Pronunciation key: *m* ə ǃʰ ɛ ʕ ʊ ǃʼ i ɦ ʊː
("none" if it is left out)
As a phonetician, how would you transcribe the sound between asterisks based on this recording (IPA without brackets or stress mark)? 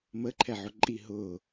m